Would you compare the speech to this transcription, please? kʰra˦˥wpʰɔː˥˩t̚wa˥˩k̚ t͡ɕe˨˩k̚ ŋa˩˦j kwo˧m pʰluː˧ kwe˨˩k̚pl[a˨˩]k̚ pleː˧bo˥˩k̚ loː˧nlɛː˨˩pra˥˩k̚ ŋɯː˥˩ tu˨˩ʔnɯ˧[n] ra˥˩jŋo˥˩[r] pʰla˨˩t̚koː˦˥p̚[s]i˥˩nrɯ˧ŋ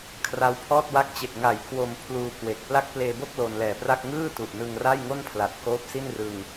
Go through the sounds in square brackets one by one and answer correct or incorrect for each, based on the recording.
incorrect, incorrect, incorrect, correct

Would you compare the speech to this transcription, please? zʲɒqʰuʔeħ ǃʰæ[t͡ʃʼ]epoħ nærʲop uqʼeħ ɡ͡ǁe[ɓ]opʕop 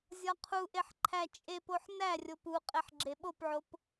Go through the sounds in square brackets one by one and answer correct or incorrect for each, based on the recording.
correct, correct

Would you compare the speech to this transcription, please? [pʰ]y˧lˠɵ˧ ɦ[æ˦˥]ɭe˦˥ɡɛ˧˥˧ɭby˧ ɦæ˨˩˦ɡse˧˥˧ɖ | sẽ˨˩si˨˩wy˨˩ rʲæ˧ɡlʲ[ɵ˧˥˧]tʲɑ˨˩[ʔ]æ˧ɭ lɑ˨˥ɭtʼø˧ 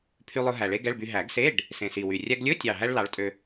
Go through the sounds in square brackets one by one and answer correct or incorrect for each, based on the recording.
correct, incorrect, correct, incorrect

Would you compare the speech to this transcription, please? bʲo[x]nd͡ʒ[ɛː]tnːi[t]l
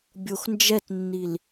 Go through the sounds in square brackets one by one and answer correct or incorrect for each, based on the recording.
correct, incorrect, incorrect

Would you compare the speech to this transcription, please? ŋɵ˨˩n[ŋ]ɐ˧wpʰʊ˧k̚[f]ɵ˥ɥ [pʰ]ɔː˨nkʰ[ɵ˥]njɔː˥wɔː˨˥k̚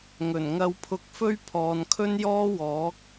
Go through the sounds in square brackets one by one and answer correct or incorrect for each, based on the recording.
correct, correct, correct, correct

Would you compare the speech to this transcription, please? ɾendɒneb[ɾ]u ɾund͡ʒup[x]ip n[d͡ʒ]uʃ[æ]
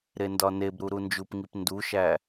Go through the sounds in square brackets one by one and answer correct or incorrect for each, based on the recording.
correct, incorrect, incorrect, correct

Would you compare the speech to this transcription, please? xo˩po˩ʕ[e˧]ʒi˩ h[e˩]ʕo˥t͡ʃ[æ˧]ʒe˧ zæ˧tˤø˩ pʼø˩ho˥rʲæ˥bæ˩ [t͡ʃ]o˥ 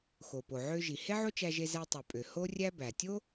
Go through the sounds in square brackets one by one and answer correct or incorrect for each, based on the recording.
incorrect, incorrect, correct, incorrect

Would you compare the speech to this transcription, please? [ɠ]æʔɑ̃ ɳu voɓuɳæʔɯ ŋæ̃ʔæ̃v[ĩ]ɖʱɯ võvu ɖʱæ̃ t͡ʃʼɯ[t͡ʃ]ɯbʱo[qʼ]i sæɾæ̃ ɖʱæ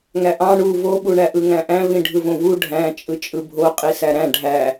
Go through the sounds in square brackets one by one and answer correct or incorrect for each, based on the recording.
incorrect, correct, incorrect, correct

